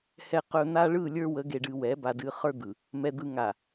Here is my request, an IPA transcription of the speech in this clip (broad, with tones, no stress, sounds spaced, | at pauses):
h ɛ˨ q ɵ˨ n̪ a˦ ɭ ɯ˦˨ lʲ ə˞˦ w ə˨˦ ɡ e˨ ɖ ɨ˨ w ɛ˨˦ b a˨ d ɨ˨ χ ə˞˦ d̪ ɯ˨ | m ɛ˨ d̪ ɯ˨ ŋ a˨